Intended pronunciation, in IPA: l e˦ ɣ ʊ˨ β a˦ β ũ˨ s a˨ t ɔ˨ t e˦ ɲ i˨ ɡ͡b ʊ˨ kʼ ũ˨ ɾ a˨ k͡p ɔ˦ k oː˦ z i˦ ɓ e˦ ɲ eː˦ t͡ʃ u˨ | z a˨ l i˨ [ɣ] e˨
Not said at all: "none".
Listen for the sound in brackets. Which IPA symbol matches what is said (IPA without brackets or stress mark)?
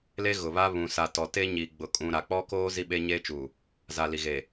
ɣ